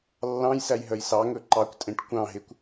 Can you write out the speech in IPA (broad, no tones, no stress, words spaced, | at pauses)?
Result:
lːɑ̃jsæj ɦœjsɑŋɵ ǃɑkʷtʼẽʈ kʷɑ̃ɦekʷ